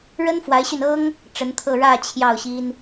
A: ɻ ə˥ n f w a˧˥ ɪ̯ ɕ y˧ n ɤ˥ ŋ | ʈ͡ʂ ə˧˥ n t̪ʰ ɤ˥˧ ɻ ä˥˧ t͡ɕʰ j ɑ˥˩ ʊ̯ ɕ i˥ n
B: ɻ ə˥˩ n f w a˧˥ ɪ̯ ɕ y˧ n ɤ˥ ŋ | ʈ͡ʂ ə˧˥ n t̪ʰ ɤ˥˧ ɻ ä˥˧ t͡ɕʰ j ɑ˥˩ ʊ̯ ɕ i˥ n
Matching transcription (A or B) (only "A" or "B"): A